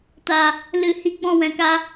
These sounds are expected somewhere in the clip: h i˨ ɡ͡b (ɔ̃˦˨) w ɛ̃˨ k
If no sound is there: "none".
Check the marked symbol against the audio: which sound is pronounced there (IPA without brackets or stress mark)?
ɔ̃˦˨